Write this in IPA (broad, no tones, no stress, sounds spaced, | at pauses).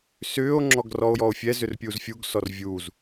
s ʏː o̯ ŋ͡ǁ ɔ ɡ r ɔ o̯ j ɔ o̯ fʲ ɛ z ʏ r pʲ uː z fʲ u ɡ s ɔ r vʲ u z